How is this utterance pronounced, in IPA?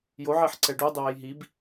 j o ʕ e ħ ǀ ɛ ɖ u dˤ i w e j ɦ i b

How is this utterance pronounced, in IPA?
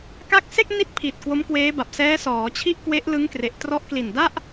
k a˦˥ k̚ s e˥˩ k̚ n i˥˩ t̚ pʰ i˨˩ t̚ k w o˦˥ m k w eː˦˥ b a˨˩ p̚ s ɛː˦˥ s ɔː˩˦ t͡ɕʰ i˥˩ ʔ k w e˦˥ ʔ l ɯ˦˥ ŋ k r e˨˩ ʔ t r ɔ˦˥ ʔ k l i˨˩ n d a˥˩ ʔ

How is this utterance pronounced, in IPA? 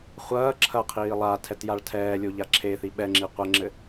χʷ ɐː ǁʰ ɐ qʰ iː lˠ a tʰ ɛ t j a ɭ tʰ ɛː lʲ o ʎ a ǁʰ e θ i ɓ ɛ ŋ͡ǁ i qʷ ɛ ŋ͡ǁ ɘ

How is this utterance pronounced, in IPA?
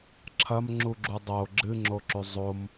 ǁʰ ɐ m ŋ͡ǁ u ɡ͡ǁ u dˤ o ɡ͡ǁ ɨ ŋ͡ǁ o ǁ ʉ zˤ o m

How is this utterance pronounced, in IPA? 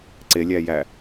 ǀ e lʲ æ j æ

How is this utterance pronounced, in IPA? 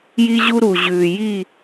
j i˦ ʑ u˦ ɾ u˨ ʑ ʉː˨ j i˦˨

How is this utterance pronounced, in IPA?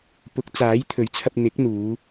p ʊ˨˥ k̚ t͡s aː˨˥ j t̪ʰ ɵ˨˥ ɥ t͡sʰ ɐ˧ p̚ n̪ ɪ˨˥ k̚ n̪ uː˨˧

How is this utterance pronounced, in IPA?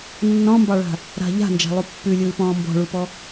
nː ɔ̃ m b ɑ ɭ a̤ | ɾ a̤ ʎ a̤ n d͡ʒ a̤ lˠ u pː ʉ lʲ ɯː p ɔ̃ː m b ɔ̤ ɭ u p ɔ

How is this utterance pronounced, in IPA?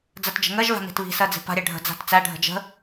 d͡z ɜ t d͡ʒ ə̤ ŋ ɜ ʒ v a̤ n i̤ t β i̤ s ɜ d͡z i̤ p a̤ ɾʲ æ ɖʱ ə̤ d͡z a̤ t t͡s æ ɖʱ ə̤ d͡ʒ ə̤

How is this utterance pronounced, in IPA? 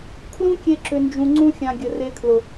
kʰ l ũ˦ kʲ e˧ ǁ ʏ˨ n d͡ʒ ũ˨ ŋ͡ǀ ũ˧ xʲ ã˨ ɡʲ ə˨ r e˧ kʰ l ʊ˨

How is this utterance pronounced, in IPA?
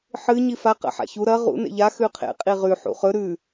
ħ ɨ ɲ i f a q a̰ ħ a̰ ç u ɾ ɐ ʁ ṵ n ḛ ʎ a x ʉ qʰ ḛ qʼ i ʁ ʉ ħ ṵ χ ɵ ɾ ʉ

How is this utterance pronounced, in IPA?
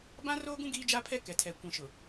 b ã˦ r oː˦ ɡ ũ˦ ɡ iː˦ d͡ʒ a˦ pʰ ɛ˦ k ɛ˨ tʰ ɛ˨ kʷ ĩ˨ ʃ ʊ˨

